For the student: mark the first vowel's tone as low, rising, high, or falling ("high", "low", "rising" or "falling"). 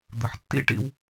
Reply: low